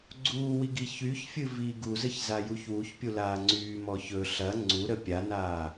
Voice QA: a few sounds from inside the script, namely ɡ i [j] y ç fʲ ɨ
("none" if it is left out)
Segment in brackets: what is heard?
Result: ç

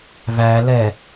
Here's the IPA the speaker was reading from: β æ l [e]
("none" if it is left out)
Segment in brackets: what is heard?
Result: ɛ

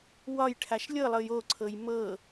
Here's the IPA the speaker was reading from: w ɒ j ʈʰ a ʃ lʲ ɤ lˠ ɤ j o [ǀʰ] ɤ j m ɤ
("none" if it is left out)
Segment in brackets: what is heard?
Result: ǀʰ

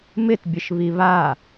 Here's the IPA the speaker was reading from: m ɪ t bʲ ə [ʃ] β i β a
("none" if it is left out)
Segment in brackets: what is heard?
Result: ʃ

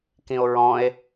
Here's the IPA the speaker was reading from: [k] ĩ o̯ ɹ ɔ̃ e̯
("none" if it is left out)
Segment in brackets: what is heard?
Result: k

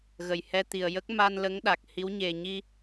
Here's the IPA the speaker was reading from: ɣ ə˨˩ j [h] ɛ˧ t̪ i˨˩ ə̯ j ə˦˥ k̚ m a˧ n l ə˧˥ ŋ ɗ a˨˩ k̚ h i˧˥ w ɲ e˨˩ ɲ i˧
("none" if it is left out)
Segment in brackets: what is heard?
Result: h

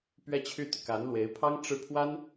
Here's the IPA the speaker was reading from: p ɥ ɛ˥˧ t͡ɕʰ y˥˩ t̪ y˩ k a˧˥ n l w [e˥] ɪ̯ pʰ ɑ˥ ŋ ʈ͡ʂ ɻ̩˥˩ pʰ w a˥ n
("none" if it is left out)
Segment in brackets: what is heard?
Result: e˧˥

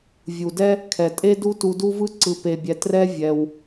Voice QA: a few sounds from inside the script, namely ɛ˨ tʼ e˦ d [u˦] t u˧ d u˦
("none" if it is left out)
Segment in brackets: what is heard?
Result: u˦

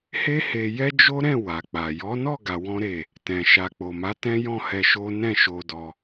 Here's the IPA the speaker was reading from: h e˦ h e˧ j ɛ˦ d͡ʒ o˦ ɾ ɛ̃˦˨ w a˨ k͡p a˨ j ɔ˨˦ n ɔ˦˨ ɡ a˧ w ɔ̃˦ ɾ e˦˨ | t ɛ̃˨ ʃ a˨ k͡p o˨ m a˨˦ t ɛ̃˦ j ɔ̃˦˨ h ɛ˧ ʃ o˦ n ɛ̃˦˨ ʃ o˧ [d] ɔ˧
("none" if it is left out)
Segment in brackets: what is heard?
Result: d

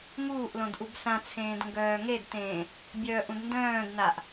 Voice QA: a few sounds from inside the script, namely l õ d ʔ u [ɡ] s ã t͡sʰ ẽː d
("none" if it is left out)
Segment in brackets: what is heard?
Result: b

